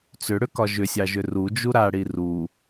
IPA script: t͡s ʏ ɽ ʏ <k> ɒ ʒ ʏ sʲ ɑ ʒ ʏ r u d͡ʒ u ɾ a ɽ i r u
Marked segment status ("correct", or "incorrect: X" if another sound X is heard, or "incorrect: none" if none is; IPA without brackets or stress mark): correct